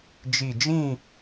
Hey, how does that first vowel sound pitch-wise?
low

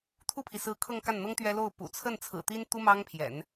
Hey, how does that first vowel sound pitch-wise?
falling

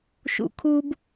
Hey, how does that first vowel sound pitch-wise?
low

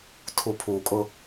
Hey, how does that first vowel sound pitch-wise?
low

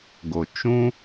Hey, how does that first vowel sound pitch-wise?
low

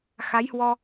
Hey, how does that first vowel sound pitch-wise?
rising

